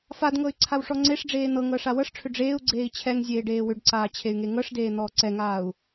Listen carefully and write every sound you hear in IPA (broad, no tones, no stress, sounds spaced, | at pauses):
f a d ŋ ɤ y̯ ǀʰ a w ʂ ɔ ŋ͡ǀ e ʂ ɖ͡ʐ eː n̪ ɤ ŋ ɤ ʂ a w ɤ ʂ ʈ͡ʂʰ ʏ ɖ͡ʐ eː u̯ ɡ͡ǀ eː i̯ t͡ɕʰ ɛ ŋ zʲ eː ɖ eː w ʏ ɖ ǀ aː t͡ɕʰ e y̯ ŋ e ŋ ɤ ʂ d eː n̪ ɔː ǀ ɛ ŋ aː u̯